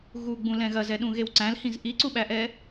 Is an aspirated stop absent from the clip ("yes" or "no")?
yes